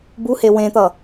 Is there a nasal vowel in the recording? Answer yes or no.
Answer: yes